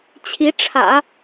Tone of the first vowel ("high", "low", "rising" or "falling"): rising